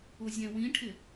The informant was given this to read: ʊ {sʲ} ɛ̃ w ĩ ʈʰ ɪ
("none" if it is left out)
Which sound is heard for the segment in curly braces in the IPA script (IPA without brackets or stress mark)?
zʲ